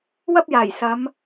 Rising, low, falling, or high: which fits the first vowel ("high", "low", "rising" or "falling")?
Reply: high